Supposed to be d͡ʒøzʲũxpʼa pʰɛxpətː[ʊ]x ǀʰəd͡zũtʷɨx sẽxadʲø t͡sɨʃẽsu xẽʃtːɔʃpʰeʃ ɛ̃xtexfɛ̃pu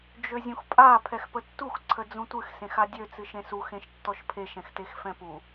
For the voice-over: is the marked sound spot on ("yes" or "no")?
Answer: no